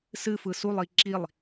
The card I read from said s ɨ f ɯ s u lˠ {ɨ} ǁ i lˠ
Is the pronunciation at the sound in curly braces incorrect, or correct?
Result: incorrect